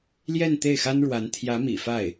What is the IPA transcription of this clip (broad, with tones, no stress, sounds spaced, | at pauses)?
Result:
l j ɛ˥˧ n t̪ e˥˩ ɪ̯ x a˥ n ɻ w a˧˥ n t̪ʰ j ä˧˥ m ḭ˨˩ f a˥˩ ɪ̯